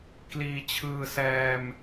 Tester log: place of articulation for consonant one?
velar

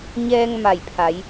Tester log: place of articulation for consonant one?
palatal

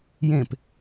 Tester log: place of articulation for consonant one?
palatal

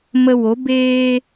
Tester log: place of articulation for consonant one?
labial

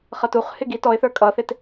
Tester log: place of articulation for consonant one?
uvular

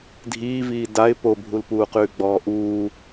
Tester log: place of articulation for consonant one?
alveolar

